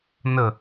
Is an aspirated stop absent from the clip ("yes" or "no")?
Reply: yes